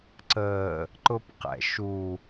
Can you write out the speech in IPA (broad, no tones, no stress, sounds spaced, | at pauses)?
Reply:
ǀ əː | ǃ ʊ p q ɛ̰ ʃ u